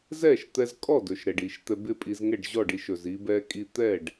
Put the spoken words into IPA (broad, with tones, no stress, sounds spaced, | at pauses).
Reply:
z ɛ˥˩ ʃ t̪ ɛ˧ z kʼ ɔ˥˩ d ɵ˩ ʃ ɾ ɛ˩ ɖ i˩ ʃ t̪ ɛ˧ b ɪ˥˩ pʼ i˧ z ŋ ɛ˥˩ ɖ ʑ ɔ˥˩ ɖ i˧ ʃ ɵ˩ z i˧ b ɛ˧ kʼ i˧ t̪ ɛ˥˩ ɖ